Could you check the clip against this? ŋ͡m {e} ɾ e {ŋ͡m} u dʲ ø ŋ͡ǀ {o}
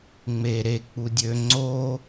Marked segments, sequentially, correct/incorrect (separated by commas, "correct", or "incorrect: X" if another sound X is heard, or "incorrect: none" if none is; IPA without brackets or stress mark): correct, incorrect: k͡p, correct